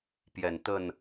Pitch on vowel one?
low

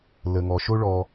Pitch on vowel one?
low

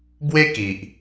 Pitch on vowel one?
high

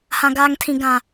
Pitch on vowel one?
high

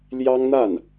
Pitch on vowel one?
high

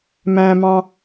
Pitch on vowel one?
low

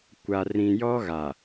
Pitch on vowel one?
low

